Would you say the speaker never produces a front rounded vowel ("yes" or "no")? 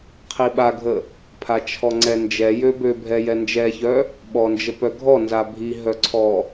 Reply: no